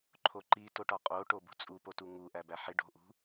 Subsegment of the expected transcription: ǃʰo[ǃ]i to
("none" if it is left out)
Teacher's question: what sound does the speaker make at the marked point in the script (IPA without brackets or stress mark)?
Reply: ǃ